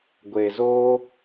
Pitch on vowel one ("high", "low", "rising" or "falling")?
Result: low